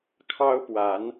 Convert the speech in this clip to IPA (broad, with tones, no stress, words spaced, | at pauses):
kʰɑ˦ʊ̯pwa˨˦n